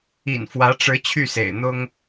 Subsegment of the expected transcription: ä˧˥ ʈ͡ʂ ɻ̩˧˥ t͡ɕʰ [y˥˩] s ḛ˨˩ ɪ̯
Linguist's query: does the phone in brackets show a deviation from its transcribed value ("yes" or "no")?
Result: no